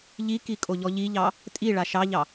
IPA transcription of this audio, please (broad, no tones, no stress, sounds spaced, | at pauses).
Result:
ʎ i k i kʼ o ʎ ɔ ʎ i ʎ ɑ | tʼ i ɭ a ʃ ɑ ʎ ɑ